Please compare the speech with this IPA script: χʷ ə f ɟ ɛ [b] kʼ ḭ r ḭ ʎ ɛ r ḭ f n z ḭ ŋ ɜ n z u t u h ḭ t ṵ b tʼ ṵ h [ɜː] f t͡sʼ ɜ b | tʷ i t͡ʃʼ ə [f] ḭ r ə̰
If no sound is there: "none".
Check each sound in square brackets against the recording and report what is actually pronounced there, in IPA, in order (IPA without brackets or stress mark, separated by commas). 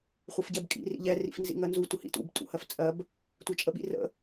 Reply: b, ɜ, ɓ